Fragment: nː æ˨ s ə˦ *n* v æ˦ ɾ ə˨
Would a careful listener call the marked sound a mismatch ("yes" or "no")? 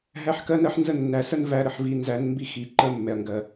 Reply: no